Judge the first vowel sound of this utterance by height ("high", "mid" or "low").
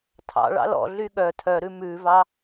low